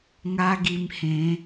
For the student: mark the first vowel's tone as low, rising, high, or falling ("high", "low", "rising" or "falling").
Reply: high